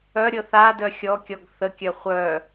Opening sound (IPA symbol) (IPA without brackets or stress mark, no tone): œ